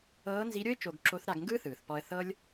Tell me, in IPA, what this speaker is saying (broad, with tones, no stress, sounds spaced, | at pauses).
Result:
ɤː˧˥ n z i˧˥ ɾʲ o˥ ɪ̯ t͡ʃ o˧ ɡ ǁ o˧˥ θ ɾ a˧ ɡ ŋ ɡ ɯː˥ θ ɯː˩ θ p ɔ˧ ə̯ θ ɤ˥ lʲ